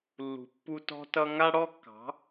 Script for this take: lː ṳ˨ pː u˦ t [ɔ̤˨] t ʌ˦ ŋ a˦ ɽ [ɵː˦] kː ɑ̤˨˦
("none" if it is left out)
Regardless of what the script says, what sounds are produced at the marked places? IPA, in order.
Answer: ɔ̤˦, ɔː˦

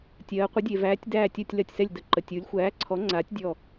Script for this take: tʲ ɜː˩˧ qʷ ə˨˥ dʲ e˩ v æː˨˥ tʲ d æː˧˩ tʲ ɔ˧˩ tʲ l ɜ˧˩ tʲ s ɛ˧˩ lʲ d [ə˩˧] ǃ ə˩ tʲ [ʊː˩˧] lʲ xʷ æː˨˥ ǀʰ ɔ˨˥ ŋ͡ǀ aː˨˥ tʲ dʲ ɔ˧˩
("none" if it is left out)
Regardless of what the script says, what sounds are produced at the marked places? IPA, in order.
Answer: ə˩˧, uː˩˧

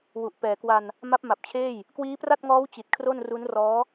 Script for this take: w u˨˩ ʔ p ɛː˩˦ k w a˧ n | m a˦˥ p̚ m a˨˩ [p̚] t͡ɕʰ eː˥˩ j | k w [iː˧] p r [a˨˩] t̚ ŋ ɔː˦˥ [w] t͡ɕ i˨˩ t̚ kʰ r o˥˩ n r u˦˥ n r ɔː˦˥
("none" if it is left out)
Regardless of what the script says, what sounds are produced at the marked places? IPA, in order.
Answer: p̚, iː˦˥, a˥˩, w

